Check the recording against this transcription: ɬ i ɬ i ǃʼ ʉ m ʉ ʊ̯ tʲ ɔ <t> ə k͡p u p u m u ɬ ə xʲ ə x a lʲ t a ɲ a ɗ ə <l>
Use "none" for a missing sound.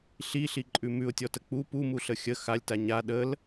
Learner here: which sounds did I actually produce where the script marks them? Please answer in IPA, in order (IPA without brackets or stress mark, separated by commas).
t, l